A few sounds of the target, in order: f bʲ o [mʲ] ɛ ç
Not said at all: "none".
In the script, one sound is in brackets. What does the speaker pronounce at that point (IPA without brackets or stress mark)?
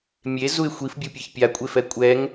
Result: pʲ